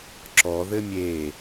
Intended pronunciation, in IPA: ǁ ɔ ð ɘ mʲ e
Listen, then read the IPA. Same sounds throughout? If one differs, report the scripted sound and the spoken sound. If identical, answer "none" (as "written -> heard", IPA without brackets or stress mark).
none